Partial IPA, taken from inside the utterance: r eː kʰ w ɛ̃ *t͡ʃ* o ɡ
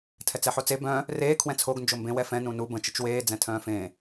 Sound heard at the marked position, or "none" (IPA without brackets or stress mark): t͡sʰ